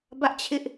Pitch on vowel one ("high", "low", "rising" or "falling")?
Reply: high